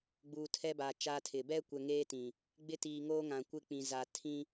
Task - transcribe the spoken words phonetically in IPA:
ɡ͡buː˨tʰɛ˦ba˨ t͡ʃa˦tʰɪ˨ bɛ˦kʷɛ˨ ŋeː˦tĩ˨ | ɡ͡bɪ˦tiː˨ ŋoː˦ ŋã˨kʷɪ˦k͡pĩ˨ zaː˨ tʰĩ˦

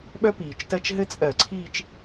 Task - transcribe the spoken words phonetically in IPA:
ɓœ˥piː˩t͡ʃtɜ˥˧t͡ʃ ɦɘ˥t͡sʼɜ˧˩˧ ǀʰiː˥˧t͡ʃ

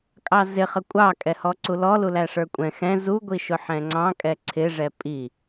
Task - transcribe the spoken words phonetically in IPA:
kʼɑzɪχə kʷʼɑkʼɛhɔ ǀulɔlulæ ʂə˞kʷʼɛ̃ xɛ̃ zuɡʷi ʃʊħɛ̃ŋ͡ǀɑ̃ kʼɛǀʰɪʐɛ pʼi

